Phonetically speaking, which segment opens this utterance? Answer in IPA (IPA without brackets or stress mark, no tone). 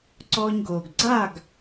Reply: ǀ